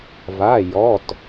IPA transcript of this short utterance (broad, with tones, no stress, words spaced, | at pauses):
va˩˧˩jɔ˩˧˩t